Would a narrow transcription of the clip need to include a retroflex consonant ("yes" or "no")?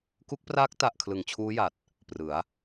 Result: no